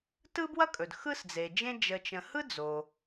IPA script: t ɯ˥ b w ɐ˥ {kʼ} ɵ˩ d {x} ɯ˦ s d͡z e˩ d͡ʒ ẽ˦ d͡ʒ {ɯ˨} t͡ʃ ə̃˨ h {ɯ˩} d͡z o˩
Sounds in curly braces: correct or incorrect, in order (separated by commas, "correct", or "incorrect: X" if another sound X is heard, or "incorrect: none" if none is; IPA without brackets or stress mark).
correct, correct, incorrect: ə˨, incorrect: ɯ˥